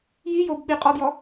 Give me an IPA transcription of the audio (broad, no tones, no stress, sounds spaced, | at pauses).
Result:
j i j o b ɓ i qʼ ɔ d j ɔ